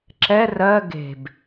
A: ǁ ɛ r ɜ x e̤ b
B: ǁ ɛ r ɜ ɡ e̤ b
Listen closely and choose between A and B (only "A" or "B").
B